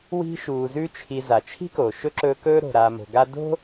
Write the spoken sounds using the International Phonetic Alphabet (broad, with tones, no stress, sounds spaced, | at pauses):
w i̤˦ ʃ uː˨ z ʉ˦ t͡ʃʰ i˨ z a˩ t͡ʃʰ i̤˥ k o˩ ʃ ɵ˥ ǁ ɵː˦ k ɵː˥ ɾ o̤˨ ɾ aː˨ m o̤˨ ɡ a˦ d o̤˥